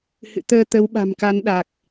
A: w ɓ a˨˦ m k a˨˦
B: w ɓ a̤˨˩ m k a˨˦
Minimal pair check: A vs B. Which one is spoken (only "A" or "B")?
B